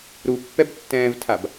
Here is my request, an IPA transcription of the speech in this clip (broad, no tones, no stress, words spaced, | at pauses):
ɾupːɛbtːɛ̃ːvtʰab